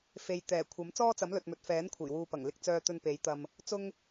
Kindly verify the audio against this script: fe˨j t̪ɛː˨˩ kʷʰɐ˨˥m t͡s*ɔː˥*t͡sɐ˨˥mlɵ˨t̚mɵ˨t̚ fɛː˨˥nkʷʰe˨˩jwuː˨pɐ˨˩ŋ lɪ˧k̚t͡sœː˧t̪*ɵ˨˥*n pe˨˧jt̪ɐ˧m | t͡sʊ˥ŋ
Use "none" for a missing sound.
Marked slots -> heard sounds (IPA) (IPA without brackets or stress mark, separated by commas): ɔː˥, ɵ˧